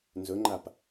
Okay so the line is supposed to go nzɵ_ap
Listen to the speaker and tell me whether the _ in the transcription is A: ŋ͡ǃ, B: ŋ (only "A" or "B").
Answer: A